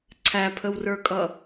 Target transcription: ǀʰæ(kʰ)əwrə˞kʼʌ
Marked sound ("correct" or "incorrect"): incorrect